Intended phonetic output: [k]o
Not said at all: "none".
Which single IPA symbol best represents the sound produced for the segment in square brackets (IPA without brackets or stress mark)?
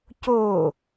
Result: c